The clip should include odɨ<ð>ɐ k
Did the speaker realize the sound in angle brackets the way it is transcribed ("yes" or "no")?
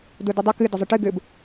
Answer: no